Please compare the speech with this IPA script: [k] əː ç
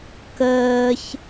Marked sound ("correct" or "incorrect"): correct